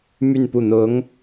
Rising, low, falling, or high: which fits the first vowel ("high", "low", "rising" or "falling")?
falling